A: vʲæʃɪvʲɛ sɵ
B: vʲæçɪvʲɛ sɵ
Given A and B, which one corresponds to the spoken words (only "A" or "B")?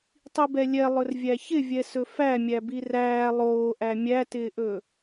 B